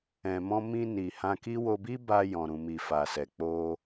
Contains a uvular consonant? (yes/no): no